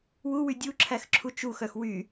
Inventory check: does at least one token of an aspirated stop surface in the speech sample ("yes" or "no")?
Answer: yes